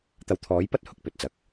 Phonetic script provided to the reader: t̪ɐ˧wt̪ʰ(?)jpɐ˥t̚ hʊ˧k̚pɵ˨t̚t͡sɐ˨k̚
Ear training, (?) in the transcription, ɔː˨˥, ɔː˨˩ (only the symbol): ɔː˨˥